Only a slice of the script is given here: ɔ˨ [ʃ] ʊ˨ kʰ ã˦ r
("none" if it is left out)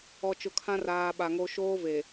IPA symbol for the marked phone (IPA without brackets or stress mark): t͡ʃ